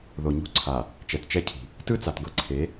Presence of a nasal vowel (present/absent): absent